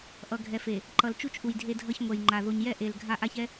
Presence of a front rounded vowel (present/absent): absent